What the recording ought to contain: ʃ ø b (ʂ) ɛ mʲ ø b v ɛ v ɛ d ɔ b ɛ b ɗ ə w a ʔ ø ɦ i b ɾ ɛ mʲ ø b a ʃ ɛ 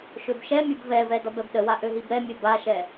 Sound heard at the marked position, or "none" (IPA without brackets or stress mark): ʃ